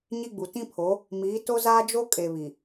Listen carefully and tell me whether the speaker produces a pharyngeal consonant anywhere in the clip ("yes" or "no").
no